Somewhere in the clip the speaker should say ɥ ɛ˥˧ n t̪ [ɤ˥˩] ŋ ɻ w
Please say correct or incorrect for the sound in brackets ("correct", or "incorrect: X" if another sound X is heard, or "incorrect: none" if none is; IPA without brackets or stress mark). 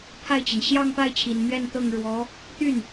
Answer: correct